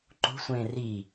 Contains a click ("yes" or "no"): yes